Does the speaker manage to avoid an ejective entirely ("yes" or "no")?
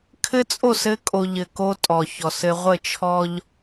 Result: no